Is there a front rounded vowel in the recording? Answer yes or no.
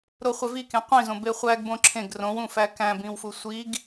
no